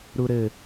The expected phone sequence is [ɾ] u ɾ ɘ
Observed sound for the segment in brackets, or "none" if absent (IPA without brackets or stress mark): ɾ